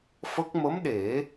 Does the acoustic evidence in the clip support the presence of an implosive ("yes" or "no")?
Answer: yes